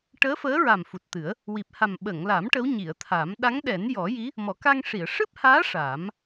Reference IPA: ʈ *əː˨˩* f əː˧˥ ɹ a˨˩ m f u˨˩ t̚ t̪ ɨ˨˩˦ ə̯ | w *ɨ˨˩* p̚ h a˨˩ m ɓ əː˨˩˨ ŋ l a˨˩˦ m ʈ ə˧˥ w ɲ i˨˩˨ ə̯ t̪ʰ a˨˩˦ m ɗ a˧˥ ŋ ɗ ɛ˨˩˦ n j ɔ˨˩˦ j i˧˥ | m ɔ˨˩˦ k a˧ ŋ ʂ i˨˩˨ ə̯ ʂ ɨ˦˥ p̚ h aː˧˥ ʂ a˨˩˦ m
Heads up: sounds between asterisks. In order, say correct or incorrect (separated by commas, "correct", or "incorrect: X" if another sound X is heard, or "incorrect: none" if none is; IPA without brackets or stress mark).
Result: incorrect: əː˧˥, incorrect: i˨˩